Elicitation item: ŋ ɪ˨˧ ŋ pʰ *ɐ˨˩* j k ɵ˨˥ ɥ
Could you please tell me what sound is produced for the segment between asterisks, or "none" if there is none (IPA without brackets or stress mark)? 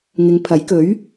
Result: ɐ˨˥